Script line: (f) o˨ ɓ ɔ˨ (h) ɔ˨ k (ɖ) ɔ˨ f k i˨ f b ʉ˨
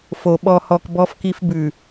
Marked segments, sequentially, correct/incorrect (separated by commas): correct, correct, incorrect